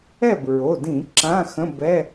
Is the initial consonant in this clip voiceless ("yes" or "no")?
no